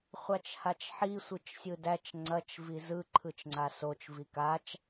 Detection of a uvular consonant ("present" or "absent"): present